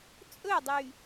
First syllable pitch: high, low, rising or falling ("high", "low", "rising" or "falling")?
falling